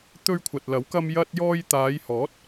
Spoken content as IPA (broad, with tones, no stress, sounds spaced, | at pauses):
t̪ ɵ˧ ɥ kʷʰ ɐ˨ t̚ l ɐ˨˥ w k ɐ˧ m j ɐ˧ t̚ j ɔː˧ j t̪ aː˨˧ j h ɔː˨˥ t̚